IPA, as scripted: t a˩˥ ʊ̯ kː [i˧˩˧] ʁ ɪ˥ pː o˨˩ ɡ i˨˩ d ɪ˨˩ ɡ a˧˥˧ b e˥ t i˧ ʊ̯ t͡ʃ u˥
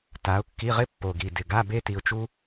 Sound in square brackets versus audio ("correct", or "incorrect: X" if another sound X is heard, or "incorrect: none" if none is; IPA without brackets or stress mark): incorrect: i˧˥˧